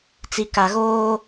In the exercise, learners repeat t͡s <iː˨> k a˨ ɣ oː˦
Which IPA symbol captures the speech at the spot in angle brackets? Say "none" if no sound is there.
i˨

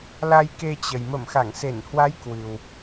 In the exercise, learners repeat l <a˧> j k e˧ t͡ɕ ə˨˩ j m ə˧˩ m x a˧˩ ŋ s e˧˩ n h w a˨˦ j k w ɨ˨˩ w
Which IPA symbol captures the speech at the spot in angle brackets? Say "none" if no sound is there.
a˧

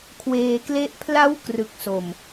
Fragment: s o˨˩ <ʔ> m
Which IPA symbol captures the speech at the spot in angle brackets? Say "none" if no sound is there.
none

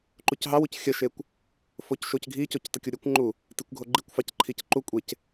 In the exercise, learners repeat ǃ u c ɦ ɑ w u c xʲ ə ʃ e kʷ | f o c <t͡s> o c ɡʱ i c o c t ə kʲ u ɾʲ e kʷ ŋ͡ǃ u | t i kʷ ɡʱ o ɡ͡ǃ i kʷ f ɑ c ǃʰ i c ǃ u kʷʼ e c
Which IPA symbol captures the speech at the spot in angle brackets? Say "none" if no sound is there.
ʃ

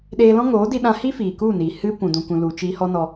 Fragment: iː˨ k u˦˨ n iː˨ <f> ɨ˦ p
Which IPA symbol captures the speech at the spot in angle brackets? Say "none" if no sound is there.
h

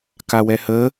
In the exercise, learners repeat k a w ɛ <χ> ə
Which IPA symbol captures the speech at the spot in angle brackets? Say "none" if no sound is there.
h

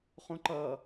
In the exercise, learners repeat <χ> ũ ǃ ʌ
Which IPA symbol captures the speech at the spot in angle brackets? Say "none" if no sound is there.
χ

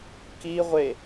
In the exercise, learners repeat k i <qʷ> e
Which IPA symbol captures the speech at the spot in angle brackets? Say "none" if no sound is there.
ʁʷ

